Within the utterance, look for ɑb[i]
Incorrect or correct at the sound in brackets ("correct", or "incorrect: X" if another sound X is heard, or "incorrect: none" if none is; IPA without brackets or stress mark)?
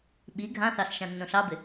incorrect: ɪ